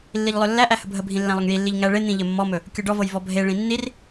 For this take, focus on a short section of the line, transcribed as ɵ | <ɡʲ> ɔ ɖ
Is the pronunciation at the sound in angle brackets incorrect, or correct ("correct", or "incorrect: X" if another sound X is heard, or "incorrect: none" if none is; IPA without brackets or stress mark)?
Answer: incorrect: kʲ